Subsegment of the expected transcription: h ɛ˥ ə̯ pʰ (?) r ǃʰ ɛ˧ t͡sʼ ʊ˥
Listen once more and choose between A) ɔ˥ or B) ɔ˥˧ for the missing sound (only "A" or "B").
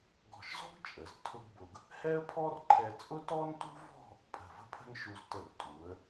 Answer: A